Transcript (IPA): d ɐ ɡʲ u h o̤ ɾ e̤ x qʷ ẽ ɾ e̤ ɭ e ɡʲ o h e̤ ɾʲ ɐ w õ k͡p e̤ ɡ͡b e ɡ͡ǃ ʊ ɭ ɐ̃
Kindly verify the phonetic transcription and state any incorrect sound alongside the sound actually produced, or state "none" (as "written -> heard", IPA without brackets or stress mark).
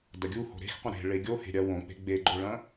none